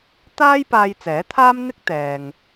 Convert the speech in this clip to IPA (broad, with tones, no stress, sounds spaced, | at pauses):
t̪ aː˥ j p aː˧ j t͡s ɛː˨˥ t̪ʰ aː˥ m n̪ ɪ˥ k̚ t̪ ɛː˨ ŋ